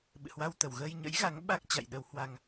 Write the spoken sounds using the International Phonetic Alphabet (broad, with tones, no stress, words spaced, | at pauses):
ɓɨ̰˧˨hwa˧wt̪ə˨˩w ɣəː˧jɲə̰˧˥jɣa˨˦ŋ ɓa˦˥k̚ t͡ɕa̰˧˨jɗə˧whwa˧ŋ